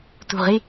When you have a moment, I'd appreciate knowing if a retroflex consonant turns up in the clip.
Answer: no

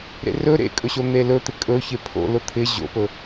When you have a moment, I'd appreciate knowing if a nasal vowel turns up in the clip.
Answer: no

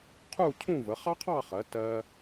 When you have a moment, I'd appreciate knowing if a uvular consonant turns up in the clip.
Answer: yes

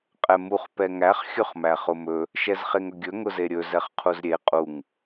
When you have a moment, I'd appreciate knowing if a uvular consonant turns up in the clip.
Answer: yes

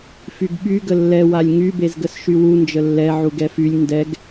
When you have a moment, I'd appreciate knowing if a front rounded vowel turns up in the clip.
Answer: yes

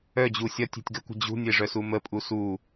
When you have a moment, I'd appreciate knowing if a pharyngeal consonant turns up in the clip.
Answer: no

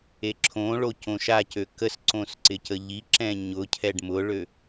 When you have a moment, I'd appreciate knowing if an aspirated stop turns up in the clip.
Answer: yes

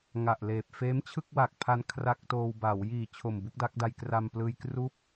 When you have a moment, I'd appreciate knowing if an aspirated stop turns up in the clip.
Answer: yes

